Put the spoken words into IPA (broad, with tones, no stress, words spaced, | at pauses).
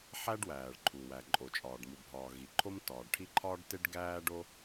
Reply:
ħæ˥ɖwæː˩ɭ ǃʰu˩ wæ˩ǃʼo˩t͡ʃʼɒː˩ɖ mu˩bʱɒː˩ ɣi˩ǃʰo˥m tɒː˩ɖ ʈʰi˥ ǃʰɒː˥ɖte˥ɖ ɡæː˥ɖo˥